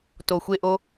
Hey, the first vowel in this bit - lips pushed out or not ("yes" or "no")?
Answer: yes